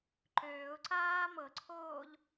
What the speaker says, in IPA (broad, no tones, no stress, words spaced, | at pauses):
ǃøːʊ̯ǀaː mɤǀʰoːʎ